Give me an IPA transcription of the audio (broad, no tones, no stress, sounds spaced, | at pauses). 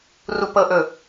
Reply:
r u p ɤ ʔ ɵ